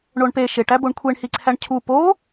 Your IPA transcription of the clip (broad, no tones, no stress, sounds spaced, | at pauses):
ɳ o ɳ p e ʃ e ʈ æ b o ɳ kʷʰ e ɳ h i ǀʰ æ ɳ cʰ u p o